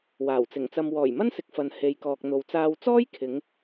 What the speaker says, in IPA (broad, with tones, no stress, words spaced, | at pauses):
waː˨˩wt͡sɪ˨˩ŋt͡sɐ˧m wɔː˨˩jmɐ˥nsɪ˨k̚fɐ˨n he˨jkɔː˨k̚n̪o˨wt͡saː˧w t͡sɔː˥jkʰɪ˨˧ŋ